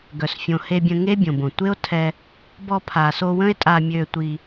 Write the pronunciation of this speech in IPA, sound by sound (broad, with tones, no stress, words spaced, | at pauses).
ɡœ˨sfʲõ˨he˧bʲə̃˧ ŋe˦bʲõ˨bõ˨ tʷe˦o̯tʰɛ˧ | bɔ˧pʰa˨so˧wə̃˦e̯ tʼa˧mʲø˧tʷi˧